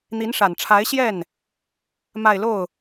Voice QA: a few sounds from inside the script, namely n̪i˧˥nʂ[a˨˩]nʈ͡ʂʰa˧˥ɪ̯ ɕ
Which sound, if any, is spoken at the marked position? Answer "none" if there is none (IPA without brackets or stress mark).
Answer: a˨˩